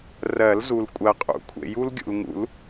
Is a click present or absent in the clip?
absent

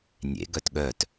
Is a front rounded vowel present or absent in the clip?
present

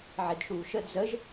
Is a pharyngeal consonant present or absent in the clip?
present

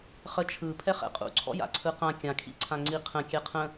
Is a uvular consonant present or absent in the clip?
present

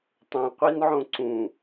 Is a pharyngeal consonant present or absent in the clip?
present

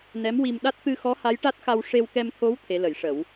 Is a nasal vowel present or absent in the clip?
absent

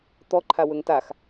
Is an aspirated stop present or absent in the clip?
present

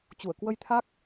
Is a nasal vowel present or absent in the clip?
absent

